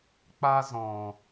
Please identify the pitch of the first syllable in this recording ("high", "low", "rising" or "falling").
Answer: high